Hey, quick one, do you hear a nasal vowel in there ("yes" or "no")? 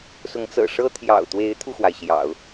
no